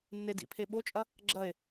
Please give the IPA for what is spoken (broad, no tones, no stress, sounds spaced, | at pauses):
nː e d ḭ pʰ e ɓ o t͡ʃʼ ɐ | ɡ͡ǁ ɐ e̯